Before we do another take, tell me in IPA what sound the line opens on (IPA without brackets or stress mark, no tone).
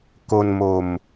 k